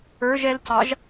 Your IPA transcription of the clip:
ə˞ ʒ ɛ l c ɑ ʒ

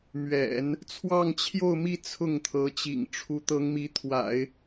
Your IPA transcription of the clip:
m ɥ ɛ̰˨˩˦ n | t͡sʰ w ɑ˥˧ ŋ t͡ɕʰ j o˥˧ ʊ̯ m i˥˧ t͡sʰ ʊ˥˩ ŋ t̪ʰ ɤ˧˥ t͡ɕ ḭ˨˩ ŋ ʈ͡ʂʰ u˧˥ t̪ ɤ˧˥ ŋ m i˧˥ t̪ʰ w a̰˨˩˦ ɪ̯

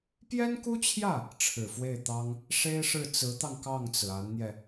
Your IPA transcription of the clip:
p j ɛ˥ n k u˥ t͡ɕʰ j ä˥˩ | ʈ͡ʂʰ ɻ̩˨˩ f w e˥˩ ɪ̯ t̪ ɑ˥ ŋ | ʂ e˥ ɪ̯ ʂ ɻ̩˥˩ t͡s ɹ̩˧˥ t̪ ɑ˧ ŋ k ɑ˥˩ ŋ t͡s ɹ̩˩ a˧˥ n n̪ j ɛ˧

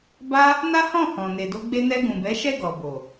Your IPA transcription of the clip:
b a˦ | n a˦ h ɔ̃˦˨ h ɔ̃˨ n e˨ d o˧ ɡ͡b e˧ n ɛ˧ ɡ ũ˨ b ɛ˨˦ ʃ ɛ˦˨ ɡ ɔ˨ b o˨

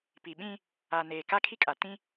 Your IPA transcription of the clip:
p i˨ ɓ ĩ˦ | a˨ n eː˨ k a˦ kʰ i˦ kʼ a˨ t ĩ˦

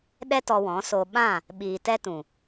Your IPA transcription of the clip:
ɗ ɛ˦ t ɔ˧ w ɔ̃˨˦ s o˧ ɓ ã˦˨ | ɓ iː˨ t ɛ˧ t ũ˨

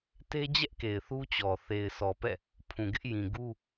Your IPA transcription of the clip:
t e˦ d͡ʑ ɛ˦ ʔ k e˨ ɪ̯ θ u˦ t͡ɕ ɔ˨ θ e˨ ɪ̯ s ɔ˨ p ɛ̰˦˨ | pʰ ũ˨ ɡ ɪ˦ ʔ j ĩ˨ ɡ u˦

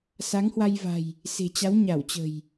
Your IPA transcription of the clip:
s a˨˦ ŋ h w a˧ j v a̤˨˩ j | s e̤˨˩ t͡ɕ a˨˦ w ɲ a˧˩ w t͡ɕ ə̤˨˩ j

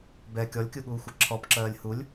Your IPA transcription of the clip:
b ɛ kʲ ɔ lʲ kʲ u ɠ uː xʷ ɛ ǁʰ ɔ p ǁ ɜː lʲ h u lʲ

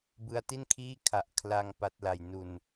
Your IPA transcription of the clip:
b ɯ˦˥ a̯ t i˥˩ n kʰ iː˥˩ kʰ a˨˩ ʔ kʰ l a˧ ŋ p a˦˥ t̚ l a˧ j n u˧ n

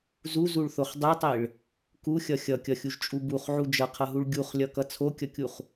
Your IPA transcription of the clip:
z u z u ɭ θ o χ dˤ e tˤ e ɭ | k u xʲ ʌ xʲ ʌ kʲ ʌ xʲ u ʒ t͡ʃʼ u b u χ ʕ u d͡ʒ ʌ qʰ ʌ ɦ u ɭ ɡʲ u χ lʲ ʌ k ʌ t͡sʰ o kʲ ʌ kʲ u χ

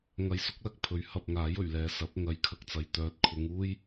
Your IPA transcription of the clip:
ŋ ɐ˧ j s ʊ˥ k̚ l ɐ˥ k̚ pʰ ɵ˨˥ ɥ h ɐ˧ p̚ ŋ aː˨˥ j ɵ˨˩ ɥ l ɛː˨ s ɐ˨˥ p̚ ŋ ɐ˨˧ j kʰ ɐ˧ k̚ t͡s ɐ˨˧ j t̪ œː˨˥ t̚ kʰ ʊ˨˧ ŋ uː˥ j

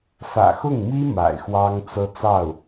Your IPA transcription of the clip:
f ä̰˨˩ x ʊ˥˩ ŋ m i˥ m a̰˨˩ ɪ̯ x w ɑ˥ ŋ t͡s ɤ˥ t͡s ɑ˥˩ ʊ̯

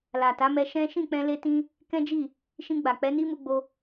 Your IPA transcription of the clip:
l a˨ t a˨˦ m ɛ˧ ʃ ɛ̃˦ ʃ ĩ˦˨ k͡p ɛ̃˧ l e˦ t ĩ˦ | k ɛ̃˦ d͡ʒ i˦˨ | ʃ ĩ˧ ɡ͡b a˨ k͡p ɛ˨˦ n i˦ m u˧ ɡ͡b o˧

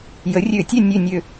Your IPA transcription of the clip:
j ə˩˥ rʲ ø˧˩˧ tʲ ɛ˥˨ nʲ ø˧˩ nʲ ø˧˩

